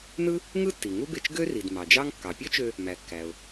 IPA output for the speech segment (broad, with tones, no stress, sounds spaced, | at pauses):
n ɯ˥ | ŋ ɯ˥ tː i˩ ŋ u˥ b e˧ t͡ʃ ɡ ø˥ r i˩ d m ɑ˩ d͡ʒ ɑ˥ ŋ kː ɑ˩ pʲ ø˥ t͡ʃ ø˧ | m æ˩ kː æ˩ ʊ̯